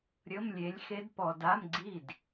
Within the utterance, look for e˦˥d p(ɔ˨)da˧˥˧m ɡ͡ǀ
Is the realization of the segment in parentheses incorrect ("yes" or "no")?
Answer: no